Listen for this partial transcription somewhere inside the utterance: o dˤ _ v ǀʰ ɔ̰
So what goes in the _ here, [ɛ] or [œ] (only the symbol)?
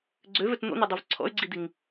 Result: œ